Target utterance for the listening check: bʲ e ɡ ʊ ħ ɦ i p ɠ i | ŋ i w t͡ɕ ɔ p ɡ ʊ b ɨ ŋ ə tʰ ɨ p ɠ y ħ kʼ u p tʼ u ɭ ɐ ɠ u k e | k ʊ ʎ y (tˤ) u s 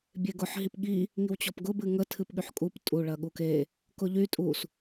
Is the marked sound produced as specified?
no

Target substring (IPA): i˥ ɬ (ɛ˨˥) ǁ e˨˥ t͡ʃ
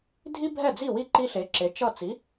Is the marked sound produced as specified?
no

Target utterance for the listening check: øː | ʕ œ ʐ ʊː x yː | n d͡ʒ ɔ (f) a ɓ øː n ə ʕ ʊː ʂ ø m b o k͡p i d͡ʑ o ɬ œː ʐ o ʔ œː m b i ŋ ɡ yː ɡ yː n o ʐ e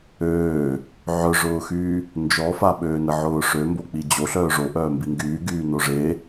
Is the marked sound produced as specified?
yes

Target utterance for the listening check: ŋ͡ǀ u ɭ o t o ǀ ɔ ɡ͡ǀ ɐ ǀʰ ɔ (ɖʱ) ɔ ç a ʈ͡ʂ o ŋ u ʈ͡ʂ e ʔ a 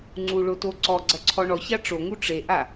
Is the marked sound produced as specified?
no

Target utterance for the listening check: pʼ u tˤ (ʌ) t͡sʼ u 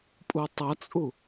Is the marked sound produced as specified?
yes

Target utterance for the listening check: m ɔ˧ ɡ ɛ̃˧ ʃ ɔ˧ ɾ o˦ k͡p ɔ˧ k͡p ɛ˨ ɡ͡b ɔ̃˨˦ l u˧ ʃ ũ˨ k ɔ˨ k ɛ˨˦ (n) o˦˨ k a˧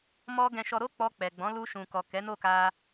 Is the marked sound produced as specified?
yes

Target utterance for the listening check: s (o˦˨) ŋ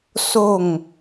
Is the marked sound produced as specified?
yes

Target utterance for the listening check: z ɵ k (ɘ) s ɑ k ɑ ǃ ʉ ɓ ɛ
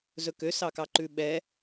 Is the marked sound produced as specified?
no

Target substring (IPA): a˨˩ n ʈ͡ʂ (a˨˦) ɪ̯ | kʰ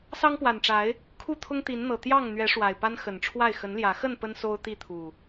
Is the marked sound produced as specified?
yes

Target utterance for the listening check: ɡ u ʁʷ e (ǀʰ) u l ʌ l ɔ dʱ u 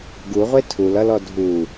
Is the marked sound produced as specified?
no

